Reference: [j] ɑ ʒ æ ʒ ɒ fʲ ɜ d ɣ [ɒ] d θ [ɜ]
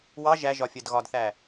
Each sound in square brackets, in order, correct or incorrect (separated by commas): incorrect, correct, incorrect